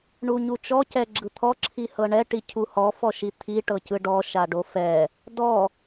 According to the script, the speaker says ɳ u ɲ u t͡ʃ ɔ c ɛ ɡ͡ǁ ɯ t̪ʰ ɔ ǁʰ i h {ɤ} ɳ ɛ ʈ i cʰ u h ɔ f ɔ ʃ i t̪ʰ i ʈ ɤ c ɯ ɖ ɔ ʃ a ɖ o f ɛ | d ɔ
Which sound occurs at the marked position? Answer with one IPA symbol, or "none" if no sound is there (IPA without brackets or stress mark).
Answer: ɤ